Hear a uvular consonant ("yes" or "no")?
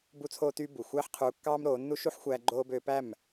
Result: yes